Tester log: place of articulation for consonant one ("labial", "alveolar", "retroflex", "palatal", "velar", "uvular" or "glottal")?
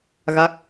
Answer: velar